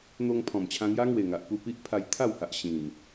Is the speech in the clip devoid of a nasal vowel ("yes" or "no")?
no